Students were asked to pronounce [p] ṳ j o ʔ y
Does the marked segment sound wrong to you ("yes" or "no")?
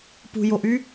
no